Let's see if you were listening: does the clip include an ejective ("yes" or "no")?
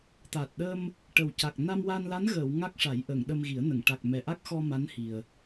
no